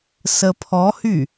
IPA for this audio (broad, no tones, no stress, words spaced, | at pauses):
səpʰɔhy